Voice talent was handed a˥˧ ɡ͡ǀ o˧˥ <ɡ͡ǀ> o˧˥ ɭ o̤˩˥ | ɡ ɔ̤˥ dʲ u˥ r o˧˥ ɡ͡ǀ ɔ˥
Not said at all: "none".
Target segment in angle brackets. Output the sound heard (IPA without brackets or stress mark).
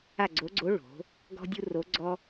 ɡ͡ǀ